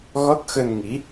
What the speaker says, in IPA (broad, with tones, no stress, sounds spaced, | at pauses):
ɣ ɔ˦˥ t̚ x ə˧ n ŋ i˨˦